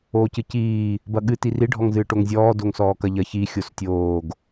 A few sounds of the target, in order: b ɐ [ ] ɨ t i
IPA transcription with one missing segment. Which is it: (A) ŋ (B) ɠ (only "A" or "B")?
B